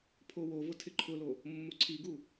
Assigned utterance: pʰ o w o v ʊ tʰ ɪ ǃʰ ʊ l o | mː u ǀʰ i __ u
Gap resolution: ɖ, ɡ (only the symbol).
ɡ